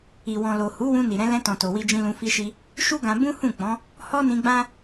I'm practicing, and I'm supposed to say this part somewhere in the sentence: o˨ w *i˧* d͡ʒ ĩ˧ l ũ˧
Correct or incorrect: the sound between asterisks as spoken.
correct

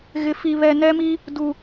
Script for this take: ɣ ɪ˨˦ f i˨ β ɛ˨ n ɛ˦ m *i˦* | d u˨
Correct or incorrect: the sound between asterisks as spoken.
correct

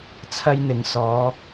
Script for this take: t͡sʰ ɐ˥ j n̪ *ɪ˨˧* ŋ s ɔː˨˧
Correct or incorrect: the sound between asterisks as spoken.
correct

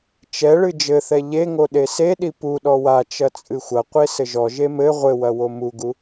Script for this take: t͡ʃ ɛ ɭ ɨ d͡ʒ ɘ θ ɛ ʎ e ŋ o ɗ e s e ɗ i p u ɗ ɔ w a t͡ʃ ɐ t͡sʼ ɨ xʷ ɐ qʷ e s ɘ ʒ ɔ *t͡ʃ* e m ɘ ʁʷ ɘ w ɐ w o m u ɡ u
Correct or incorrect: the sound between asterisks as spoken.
incorrect: ʒ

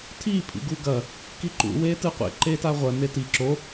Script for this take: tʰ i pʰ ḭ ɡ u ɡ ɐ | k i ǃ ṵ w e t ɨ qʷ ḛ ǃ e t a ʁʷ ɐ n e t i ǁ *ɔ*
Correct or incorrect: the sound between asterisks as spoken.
incorrect: o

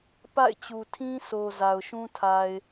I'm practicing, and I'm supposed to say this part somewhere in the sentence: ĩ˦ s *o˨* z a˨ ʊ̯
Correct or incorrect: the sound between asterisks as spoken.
correct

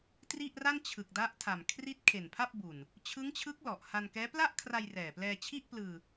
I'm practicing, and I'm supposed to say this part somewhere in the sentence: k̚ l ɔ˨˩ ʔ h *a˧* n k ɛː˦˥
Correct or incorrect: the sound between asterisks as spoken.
correct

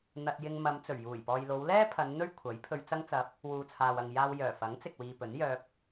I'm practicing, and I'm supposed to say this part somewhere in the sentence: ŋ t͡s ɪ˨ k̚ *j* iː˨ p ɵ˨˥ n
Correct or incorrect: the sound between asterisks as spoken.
incorrect: w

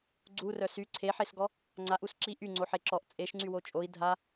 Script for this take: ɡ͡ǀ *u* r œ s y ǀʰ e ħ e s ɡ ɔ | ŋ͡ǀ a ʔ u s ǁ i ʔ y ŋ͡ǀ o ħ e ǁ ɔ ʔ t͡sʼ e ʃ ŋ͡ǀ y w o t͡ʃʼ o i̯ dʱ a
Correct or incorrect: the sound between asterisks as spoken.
correct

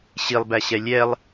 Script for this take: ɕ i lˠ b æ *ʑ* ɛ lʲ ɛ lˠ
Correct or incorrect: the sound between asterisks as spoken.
incorrect: ɕ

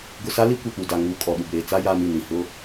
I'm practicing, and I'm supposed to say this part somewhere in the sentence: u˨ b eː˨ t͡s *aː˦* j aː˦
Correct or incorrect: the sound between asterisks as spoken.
incorrect: a˦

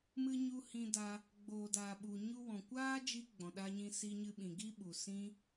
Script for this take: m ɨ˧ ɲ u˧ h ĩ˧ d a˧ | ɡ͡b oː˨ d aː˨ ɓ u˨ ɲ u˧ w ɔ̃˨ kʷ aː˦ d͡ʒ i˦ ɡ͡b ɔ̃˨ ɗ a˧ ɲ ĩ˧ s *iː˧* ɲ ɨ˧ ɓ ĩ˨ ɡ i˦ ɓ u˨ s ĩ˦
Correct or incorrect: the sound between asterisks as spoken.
incorrect: i˧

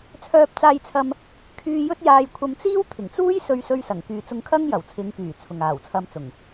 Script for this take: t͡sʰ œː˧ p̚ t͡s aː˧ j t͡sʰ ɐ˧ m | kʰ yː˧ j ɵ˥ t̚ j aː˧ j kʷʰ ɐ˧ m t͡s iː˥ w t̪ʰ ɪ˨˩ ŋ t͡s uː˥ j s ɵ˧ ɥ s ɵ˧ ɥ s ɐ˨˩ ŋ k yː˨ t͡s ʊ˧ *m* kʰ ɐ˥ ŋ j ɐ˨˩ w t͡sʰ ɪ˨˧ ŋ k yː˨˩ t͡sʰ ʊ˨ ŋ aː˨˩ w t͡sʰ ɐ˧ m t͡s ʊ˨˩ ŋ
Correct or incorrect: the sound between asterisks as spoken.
incorrect: ŋ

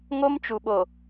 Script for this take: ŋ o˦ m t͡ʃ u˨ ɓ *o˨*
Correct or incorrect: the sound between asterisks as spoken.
correct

